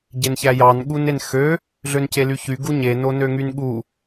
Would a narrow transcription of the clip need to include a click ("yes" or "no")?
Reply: no